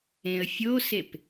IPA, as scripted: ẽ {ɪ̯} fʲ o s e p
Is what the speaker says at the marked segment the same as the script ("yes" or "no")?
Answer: no